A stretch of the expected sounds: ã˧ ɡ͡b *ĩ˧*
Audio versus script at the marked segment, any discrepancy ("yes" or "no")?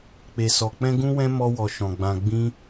yes